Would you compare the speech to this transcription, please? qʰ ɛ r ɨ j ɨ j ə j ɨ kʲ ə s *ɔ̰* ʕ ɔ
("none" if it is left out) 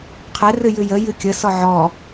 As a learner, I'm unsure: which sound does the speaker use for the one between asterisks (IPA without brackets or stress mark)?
ɔ